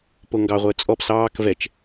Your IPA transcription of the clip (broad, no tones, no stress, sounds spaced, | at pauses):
p o ŋ ɡ ɑ ʁʷ əː t͡sʼ ɔ p s ɑː k v ɛ t͡ʃ